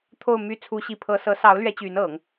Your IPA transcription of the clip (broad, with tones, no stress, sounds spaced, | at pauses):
t̪ʰ o˥˧ ʊ̯ m y˥˩ t͡sʰ u˥ ɕ i˥˩ pʰ ɤ˥ s ɤ˧˥ s ɑ˧˥ ʊ̯ l ɥ ɛ˧˥ t͡ɕ y˧˥ n ɤ˨˩˦ ŋ